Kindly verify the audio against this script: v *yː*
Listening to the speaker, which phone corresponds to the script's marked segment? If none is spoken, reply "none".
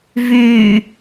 yː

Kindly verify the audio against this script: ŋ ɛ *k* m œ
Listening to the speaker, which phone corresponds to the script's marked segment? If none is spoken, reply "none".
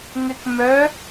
k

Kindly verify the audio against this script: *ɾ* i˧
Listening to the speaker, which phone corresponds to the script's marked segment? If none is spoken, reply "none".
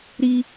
ɾ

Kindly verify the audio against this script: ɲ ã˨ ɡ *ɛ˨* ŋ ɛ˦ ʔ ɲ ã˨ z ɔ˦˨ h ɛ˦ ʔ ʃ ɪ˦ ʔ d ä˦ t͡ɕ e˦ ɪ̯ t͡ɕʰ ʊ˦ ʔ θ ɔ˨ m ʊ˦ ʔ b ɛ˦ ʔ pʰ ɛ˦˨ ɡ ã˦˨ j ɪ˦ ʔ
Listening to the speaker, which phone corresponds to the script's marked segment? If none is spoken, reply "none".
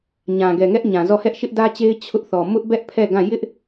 ɛ˨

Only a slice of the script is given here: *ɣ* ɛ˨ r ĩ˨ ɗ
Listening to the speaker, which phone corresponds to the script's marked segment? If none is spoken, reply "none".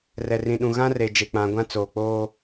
r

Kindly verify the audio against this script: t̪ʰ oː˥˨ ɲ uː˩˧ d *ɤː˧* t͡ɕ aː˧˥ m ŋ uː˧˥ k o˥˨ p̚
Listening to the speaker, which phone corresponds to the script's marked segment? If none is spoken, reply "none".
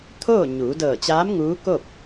ɤː˧˩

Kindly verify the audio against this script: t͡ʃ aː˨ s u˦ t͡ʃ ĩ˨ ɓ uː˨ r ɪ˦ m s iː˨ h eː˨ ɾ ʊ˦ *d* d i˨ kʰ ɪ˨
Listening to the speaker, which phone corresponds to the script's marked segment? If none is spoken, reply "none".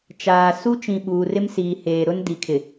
n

